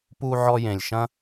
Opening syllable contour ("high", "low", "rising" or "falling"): high